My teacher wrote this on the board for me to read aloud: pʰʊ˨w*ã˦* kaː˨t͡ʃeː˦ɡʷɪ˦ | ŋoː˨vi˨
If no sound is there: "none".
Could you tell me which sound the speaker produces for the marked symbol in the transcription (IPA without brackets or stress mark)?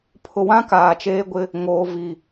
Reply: ã˦